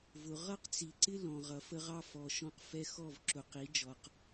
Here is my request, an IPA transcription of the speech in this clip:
vʊ˨ ʁʌ˦qt͡si˨ǀɪ˦ lɔ̃˨ ʁʌ˨fə˦ʁɑ˦ fɔ˨ ʃɔ̃˦q fɛ˦xɔ˦˨v ǁʊ˨qi˨˦ d͡ʒɔ˨q

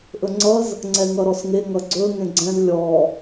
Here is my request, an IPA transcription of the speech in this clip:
ʔɵŋ͡ǀʌz | ŋ͡ǀɛŋʌɾɔsŋe ŋʌɡ͡ǀɵ ŋẽɡ͡ǀɛ̃z lʲɔ

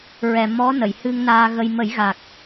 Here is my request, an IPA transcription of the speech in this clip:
ɹɛ˨˩ mɔ˧˥nə˨˩˨j hɨ˧ŋ naː˧ɣə˧j mə˨˩˦jɣa˨˩k̚

